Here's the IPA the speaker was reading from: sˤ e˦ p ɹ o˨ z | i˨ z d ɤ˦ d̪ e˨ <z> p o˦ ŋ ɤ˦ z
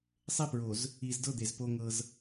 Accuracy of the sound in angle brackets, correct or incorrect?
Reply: correct